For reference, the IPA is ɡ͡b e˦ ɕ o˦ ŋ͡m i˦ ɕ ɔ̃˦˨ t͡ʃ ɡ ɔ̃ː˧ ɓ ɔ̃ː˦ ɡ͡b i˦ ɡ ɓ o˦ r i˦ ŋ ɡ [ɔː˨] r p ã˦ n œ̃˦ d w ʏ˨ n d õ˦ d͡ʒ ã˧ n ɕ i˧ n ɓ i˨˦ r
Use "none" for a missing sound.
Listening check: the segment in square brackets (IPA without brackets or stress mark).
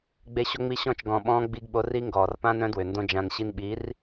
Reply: ɔː˨